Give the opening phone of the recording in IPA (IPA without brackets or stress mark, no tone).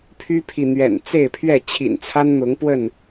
pʰ